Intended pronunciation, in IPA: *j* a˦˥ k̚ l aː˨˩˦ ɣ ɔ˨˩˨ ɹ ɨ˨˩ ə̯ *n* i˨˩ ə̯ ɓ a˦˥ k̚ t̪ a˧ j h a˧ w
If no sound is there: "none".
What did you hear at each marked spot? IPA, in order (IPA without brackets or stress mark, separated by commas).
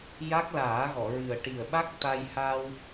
j, ʈ